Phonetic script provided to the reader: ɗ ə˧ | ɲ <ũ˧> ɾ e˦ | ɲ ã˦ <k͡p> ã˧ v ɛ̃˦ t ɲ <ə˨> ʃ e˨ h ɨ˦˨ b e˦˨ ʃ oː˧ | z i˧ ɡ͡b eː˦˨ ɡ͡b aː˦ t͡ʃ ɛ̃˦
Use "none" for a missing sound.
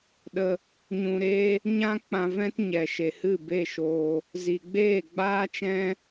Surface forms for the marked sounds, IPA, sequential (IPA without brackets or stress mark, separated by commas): ũ˧, k͡p, ɛ˨